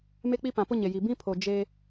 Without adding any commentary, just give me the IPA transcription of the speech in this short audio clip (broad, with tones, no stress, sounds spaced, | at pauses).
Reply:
m e˦ k͡p i˦ p ã˨ p ʊ˦ ɲ e˨ j i˨ b ĩ˦ pʰ o˨ d͡ʒ e˦